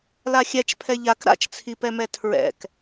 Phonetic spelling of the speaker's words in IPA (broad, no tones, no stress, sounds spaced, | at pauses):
l a xʲ ɛ t͡ʃ pʰ ɛ ʎ a k ɾ a̰ t͡ʃ t͡sʰ i p ɛ m ɛ tʰ ɹ ɛ̰ k